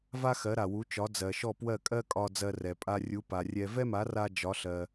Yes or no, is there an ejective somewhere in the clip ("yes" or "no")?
yes